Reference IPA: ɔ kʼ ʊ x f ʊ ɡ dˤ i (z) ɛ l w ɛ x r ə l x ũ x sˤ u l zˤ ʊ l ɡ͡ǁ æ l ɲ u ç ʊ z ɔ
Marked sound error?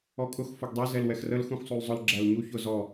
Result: no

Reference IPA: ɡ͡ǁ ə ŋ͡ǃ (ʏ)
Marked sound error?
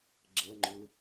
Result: no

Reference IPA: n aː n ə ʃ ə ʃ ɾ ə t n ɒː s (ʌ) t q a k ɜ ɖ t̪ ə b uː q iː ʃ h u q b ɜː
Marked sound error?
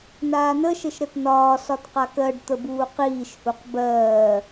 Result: yes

